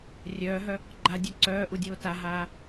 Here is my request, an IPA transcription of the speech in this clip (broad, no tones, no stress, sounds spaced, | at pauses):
rʲ œː ɦ œ | ɡ͡ǃ a dʲ o ǀ œː ʔ u dʲ oː t a ɦ aː